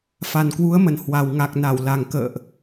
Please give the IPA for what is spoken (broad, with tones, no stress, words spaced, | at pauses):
fa˨˩nkwu˨˦ə̯mə˨˩nhwa˨˩w ŋa˨˩k̚na˧˩wla˨˩ŋ kə̰ː˧˨ʔ